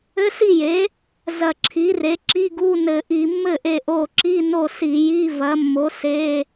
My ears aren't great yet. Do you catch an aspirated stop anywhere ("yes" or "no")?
yes